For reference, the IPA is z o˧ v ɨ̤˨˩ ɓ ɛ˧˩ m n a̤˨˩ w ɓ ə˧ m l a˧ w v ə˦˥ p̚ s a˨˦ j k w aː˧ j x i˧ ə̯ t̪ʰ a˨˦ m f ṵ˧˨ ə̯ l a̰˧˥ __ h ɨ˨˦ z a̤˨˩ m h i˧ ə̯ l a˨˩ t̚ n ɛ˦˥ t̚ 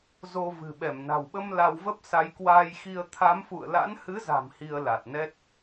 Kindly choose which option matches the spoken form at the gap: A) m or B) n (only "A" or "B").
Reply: B